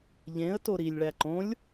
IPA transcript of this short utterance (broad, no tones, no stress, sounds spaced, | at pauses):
ʎ ẽ ə̯ t o ɾ i lʲ ɭ æ ǃ õ lʲ